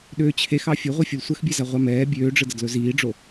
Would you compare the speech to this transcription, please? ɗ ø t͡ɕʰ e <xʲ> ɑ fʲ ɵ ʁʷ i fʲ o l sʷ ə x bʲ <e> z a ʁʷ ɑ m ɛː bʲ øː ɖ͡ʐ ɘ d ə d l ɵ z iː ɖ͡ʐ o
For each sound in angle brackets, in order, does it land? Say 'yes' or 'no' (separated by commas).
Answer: no, no